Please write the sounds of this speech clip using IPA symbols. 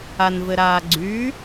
anvɘɾaːɡ͡ǀyː

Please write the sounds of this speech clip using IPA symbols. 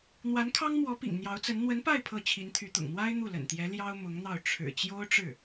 n̪wa˧˥nkʰɑ˥ŋmwɔ˧˥ pḭ˨˩ŋn̪jɑ˧˥ʊ̯t͡sə˧˥n n̪wə˧˥npa˥˧ɪ̯ pʰɤ˥˩t͡ɕʰi˧˥nt̪ʰy˧˥t̪ʊ̰˨˩ŋ n̪wa˥ɪ̯ n̪u˥˩lə̰˨˩nt̪jɛ˧˥ ljɑ˥ʊ̯mʊ˧˥ŋn̪ɑ˥˩ʊ̯ ʈ͡ʂʰɻ̩˨˩ t͡ɕjo˥ʊ̯ʈ͡ʂɻ̩˥˩

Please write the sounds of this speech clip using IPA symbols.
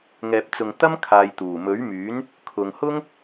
ŋɛː˧p̚t͡sʊ˧ŋ t̪ɐ˥mkʰaː˨jt̪uː˨˩ mɵ˨˥ɥmyː˨˥n | kʰʊ˨ŋhʊ˥ŋ

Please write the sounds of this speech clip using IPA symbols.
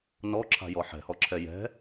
nɔǁʰa̤jɔ ħɛ̤hɔǁʰɛ jɛ̤

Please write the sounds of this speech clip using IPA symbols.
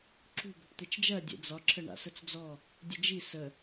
ǁṳ bəʈt̪et͡ʃd͡ʒɜ dʲḛd͡zɒ ǁʰəɳa̰sət͡sd͡zɔ | dʲəd͡ʒi sə

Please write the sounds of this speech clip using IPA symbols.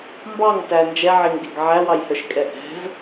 mbɑŋtæ nd͡ʒɛʕeŋɡeɡ ʕæwɑjhœʃkʼɛ ʔɛ̤v

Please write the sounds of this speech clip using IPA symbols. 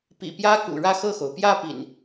pḭ˨˩pjä˦ kṵ˨˩ɻä˥˨xɤ˥˨xo˩ʊ̯ pjä˥˨pḭ˨˩n

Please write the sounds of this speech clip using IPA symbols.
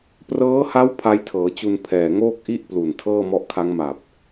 prɤː˦˥ha˦˥w pʰa˧jtʰɤː˩˦t͡ɕu˧n pʰɛː˨˩ŋoː˥˩k̚ ʔi˥˩ʔplu˨˩n tʰɤː˥˩mɔ˦˥ʔkʰa˦˥ŋma˨˩p̚

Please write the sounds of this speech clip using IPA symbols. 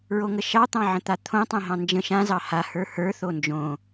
ɹoŋəʃɑt̪ɑ̃ ʕə̃t̪at̪ʰõtˤõ ɦɑ̃nd͡ʒə̃ ʃãzɑ hahə˞ hə˞θo nd͡ʒõ

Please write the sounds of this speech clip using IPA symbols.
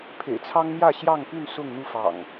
pʰḛ˨˩ɪ̯t͡sʰɑ˦ŋn̪jä˥˨ɕjɑ˥˨ŋ py˥˨n sʊ˥˨ŋn̪u˥˨ fɑ̰˨˩ŋ

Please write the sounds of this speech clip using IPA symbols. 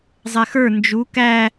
zˤɛxə˞ nd͡ʒu kæ

